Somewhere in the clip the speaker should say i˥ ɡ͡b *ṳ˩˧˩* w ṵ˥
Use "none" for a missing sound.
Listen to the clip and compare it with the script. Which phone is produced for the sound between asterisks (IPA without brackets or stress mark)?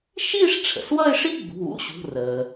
ṳ˩˧˩